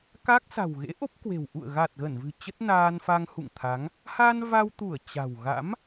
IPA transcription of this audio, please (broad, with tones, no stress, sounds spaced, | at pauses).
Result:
k a˦˥ k̚ s a̤˨˩ w ɣ ḛ˧˥ ʔ o˦˥ p̚ k w e̤˨˩ w ʔ ṵ˧˨ ə̯ ɣ a˨˩ t̚ ɣ ə˧˩ n v ɨ̤˨˩ t͡ɕ ə˦˥ t̚ n aː˧ n f a˧ ŋ h ṵ˧˨ ŋ t̪ʰ a˨˦ ŋ | h a˧ n v a˧ w t̪ u˧˩ ə̯ t͡ɕ a̤˨˩ w ɣ a̰˧˥ m